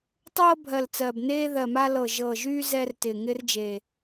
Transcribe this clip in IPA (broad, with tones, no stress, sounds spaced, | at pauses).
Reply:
tˤ ɤː˦ bʱ ɜ˨˩ l t͡s ɜ˨˩ b n eː˦ ð ɜ˨˩ m a˦ l ɤ˨˩ ʒ ɤ˨˩ ʒ yː˦ z ɛ˦ r t ɪː˨˩ ŋ ɪː˦ r d͡ʒ e˨˩